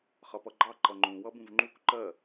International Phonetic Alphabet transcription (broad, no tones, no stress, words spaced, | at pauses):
χʌpʌɡ͡ǃɑ ǃʌŋ͡ǃũ wʌbũvŋ͡ǃuk ǃɜ